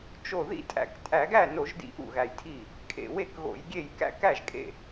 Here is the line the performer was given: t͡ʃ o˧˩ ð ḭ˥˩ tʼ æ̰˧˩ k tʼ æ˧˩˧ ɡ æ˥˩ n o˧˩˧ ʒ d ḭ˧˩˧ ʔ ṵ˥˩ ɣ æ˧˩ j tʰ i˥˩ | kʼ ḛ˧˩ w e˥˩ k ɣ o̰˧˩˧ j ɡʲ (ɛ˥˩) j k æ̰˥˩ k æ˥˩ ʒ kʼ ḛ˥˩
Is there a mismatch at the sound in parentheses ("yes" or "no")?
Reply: yes